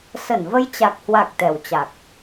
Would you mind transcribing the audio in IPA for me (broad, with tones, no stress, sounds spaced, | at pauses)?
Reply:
s ə˧˩ n v ə˧ j t͡ɕ a˨˩ k̚ h w a˨˩ k̚ t̪ ɛ˨˩ w t͡ɕ a˨˩ k̚